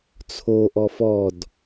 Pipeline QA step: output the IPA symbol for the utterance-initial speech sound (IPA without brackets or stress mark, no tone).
t͡sʰ